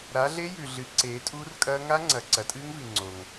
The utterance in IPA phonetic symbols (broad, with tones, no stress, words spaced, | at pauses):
ɾa˨˦ɮe˦˥jʉ˨ ɮɨ˨˦ ǀeː˨˦tʼuː˦˥rkʼɐː˦˥ ŋa˦˥ŋ͡ǀɐ˨ ǀɐ˨˦tʼɨː˦˥ŋvi˨ ŋ͡ǀo˨ŋ